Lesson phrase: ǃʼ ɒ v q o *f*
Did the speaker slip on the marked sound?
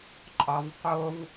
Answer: yes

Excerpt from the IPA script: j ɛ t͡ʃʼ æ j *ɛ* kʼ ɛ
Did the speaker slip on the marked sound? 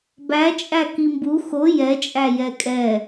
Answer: no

